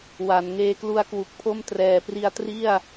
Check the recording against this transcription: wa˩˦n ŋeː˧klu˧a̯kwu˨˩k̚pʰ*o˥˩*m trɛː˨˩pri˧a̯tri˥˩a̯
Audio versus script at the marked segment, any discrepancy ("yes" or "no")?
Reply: no